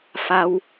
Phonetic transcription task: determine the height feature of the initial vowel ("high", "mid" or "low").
low